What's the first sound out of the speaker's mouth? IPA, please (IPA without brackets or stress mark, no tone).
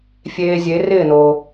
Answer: fʲ